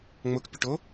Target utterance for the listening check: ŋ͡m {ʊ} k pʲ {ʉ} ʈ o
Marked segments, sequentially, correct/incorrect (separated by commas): correct, correct